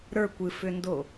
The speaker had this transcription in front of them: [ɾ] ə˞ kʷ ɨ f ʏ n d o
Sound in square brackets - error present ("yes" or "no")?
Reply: no